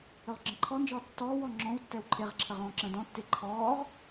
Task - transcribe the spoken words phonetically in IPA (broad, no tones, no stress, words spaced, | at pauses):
ɵʁɡ͡ǁə̃ǃʰɔnd͡ʒɔː tːɔːwɔ ŋ͡ǁɔ̃wtːɛw ǃʰeʁǁʰə ʁɔ̃ːǁə̃ːdɔ̃tːe ǃʰɔːʁ